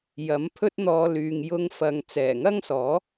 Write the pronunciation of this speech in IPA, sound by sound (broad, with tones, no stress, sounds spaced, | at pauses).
j ɐ˨˥ m pʰ ɵ˥ t̚ n̪ ɔː˧ l yː˨ ŋ j ʊ˧ ŋ f ɐ˨ ŋ t͡s ɛː˨˩ ŋ ɐ˥ ŋ s ɔː˨˥